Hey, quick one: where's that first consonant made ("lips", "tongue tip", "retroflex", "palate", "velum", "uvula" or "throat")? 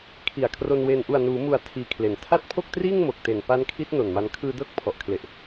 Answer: velum